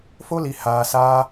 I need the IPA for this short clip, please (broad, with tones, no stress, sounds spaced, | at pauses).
f o˦ l i˨ h aː˨ s aː˧